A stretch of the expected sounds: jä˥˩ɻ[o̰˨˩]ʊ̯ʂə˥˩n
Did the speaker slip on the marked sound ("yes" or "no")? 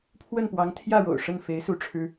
no